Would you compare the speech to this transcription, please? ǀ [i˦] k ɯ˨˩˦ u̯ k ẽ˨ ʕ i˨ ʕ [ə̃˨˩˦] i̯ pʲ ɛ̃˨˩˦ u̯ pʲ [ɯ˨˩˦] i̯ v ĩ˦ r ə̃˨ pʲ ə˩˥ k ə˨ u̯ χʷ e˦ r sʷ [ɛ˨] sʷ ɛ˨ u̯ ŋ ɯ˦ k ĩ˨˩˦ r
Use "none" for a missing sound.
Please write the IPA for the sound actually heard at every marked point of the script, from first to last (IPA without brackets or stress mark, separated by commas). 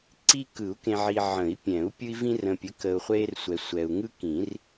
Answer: i˦, ə̃˨˩˦, ɯ˦, ɛ˨